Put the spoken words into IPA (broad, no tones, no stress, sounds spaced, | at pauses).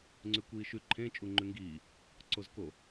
ŋ͡ǀ ʉ kʷ iː ʃ ʉ ǃʰ ẽ t͡ʃʼ u ŋ͡ǃ ʉ ŋ ɡ iː | ǀ o z k o